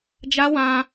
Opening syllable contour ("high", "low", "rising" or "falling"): high